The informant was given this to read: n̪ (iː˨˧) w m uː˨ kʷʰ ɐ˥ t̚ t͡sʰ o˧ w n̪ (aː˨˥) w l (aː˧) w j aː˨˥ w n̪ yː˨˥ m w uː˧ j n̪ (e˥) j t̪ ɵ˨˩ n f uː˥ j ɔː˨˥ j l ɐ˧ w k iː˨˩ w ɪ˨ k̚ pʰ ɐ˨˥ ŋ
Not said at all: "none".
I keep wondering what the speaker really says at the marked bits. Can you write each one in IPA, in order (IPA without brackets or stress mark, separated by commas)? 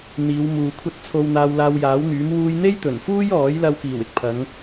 iː˨˧, aː˧, aː˧, e˥